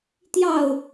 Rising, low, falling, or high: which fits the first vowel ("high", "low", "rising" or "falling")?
falling